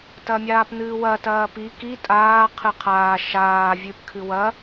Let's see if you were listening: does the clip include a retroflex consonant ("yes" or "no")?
no